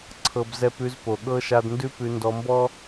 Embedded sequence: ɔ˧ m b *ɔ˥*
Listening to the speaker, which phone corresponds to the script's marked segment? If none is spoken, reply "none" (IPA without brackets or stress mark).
ɔ˥